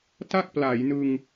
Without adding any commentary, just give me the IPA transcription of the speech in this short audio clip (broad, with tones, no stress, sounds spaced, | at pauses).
t a˥˩ k̚ p l a˩˦ j n ɯ˧ ŋ